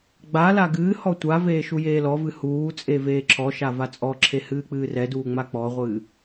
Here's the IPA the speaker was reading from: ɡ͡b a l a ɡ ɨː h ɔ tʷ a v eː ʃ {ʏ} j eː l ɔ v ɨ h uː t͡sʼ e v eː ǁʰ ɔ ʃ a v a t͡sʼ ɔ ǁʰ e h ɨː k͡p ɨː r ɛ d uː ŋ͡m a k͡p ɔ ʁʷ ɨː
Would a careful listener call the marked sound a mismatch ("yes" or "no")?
yes